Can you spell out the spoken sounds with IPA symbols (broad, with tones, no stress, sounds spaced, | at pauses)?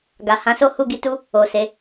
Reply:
ɡ a˨ h ã˨˦ s o˦ h u˦˨ ɡ i˧ t u˦ | o˨ s e˨˦